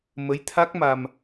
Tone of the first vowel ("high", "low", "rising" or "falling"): rising